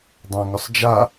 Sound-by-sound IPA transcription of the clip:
dˤ ã ŋ ʊ sˤ d͡ʒ a

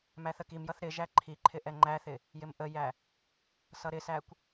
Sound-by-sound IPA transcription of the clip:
m æ θ ə k i m j ʌ θ ɾ ɪ ʒ æ ǃʰ i ǃʰ ɪ ʔ ɛ ŋ͡ǃ æ θ ɪ | j ɪ m ʔ ə j æ | s ʌ ɾ ɪ s æ kʷ

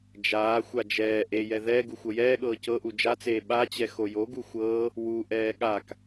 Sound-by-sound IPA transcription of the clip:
d͡ʒ aː xʷ a d͡ʒ ɛː ʔ e j ɛ ð ɛ ɡ u xʷ ɤ j ɛː ɠ ɤː c ɤ ʔ u d͡ʒ a t͡s eː ɓ a t͡ɕ ɛ x o j o ɡ u xʷ ɤː | w u ʔ ɛː ɠ a k

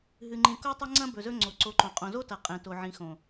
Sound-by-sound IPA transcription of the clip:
ɦ ɨ˧ ŋ͡ǃ ĩ˧ k o˦ tˤ ɐ˦ ŋ͡ǀ ɐ̃˦ b ɵ˨ z ɵ˧ ŋ͡ǀ o˨ ǀ o˨˦ ǃ õ˨ qʼ õ˨ z o˦ t ɐ˨ qʼ ẽ˨ t o˨ ʕ ĩ˨ x õ˨

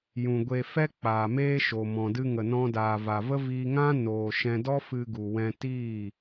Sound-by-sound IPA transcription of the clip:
j ũ˨ ɡʷ e˨ f ɛ˧ k͡p aː˨ m eː˦ ʃ o˨ m ɔ̃˨ d ɨ˧ ŋ ə˨ n ɔ̃˧ d aː˨ v a˨ v ə˦ v iː˧ ŋ ã˦ n oː˨ ʃ ɛ̃˧ d ɔ˦ f ɨ˧ ɡ u˨ w ɛ̃˧ t iː˦˨

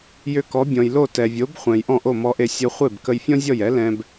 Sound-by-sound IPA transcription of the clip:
j ʏ˧ k ɔ˩˥ bʲ ɔ̃˩ j l o˥˩ t ɛ˩ vʲ o˩˥ b χʷ ɛ̃˩ j ʔ ɔ̃˥˩ ʔ o˥˩ m ɔ˧ ʔ e˧ sʲ o˧ χʷ e˥˩ b k ə˧ j fʲ ɔ̃˥ zʲ ɔ˥˩ j ɛ˩˥ l ɛ̃˧ b

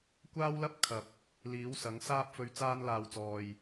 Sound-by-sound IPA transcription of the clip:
kʷ aː˥ w l ɐ˥ p̚ kʰ ɐ˨ p̚ | l iː˨˥ w s ɐ˨˥ ŋ s aː˥ p̚ f ɵ˧ ɥ t͡s aː˧ n l aː˨ w t͡s ɔː˨ j

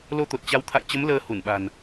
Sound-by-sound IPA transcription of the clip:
l o˧ t̪ o˨˩ t̚ t͡ɕ a˨˦ w t̪ʰ a̰˧˨ j t͡ɕ ə˨˦ m l əː˧ h u˧˩ n ɓ a̤˨˩ n

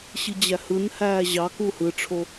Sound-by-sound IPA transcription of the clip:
ɕ i d͡ʑ æ h ɯ n h æː ʑ ɑ k u h ɯ ʈ͡ʂʰ o

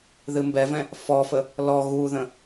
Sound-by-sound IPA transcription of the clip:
ð ɨ m b ɛ v ɛ̃ | f ɔ f ə | l ɔ ɣ u ð ə̃

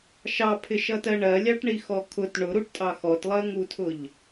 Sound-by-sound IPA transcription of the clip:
ʃ ɑ pʰ ɪ ʃ ʌ t ɜ ɳ ɜ lʲ ɑ ʈ ɳ i x ɔ kʰ ʊ t ɳ ʊ ɾ u ʈ tʼ ɑ x ɔ t lˠ ɜ ŋ u tʰ ʊ ʎ

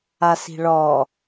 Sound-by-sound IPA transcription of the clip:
a s i̤ ɭ ɔ

